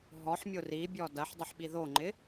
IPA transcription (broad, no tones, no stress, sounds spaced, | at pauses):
ɦ ɔ ħ mʲ ʊ r i bʲ ɔ d ɐ ħ dˤ ə ħ ɓ i ð o ŋ͡ǃ ɪ